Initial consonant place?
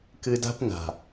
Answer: velar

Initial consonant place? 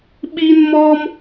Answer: labial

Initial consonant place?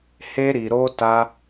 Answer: glottal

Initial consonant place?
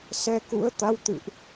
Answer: alveolar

